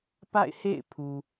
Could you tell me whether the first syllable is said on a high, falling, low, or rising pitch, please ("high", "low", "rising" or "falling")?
falling